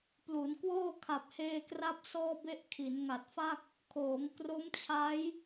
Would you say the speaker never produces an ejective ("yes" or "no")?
yes